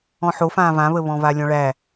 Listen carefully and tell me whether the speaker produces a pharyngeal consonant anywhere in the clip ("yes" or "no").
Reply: yes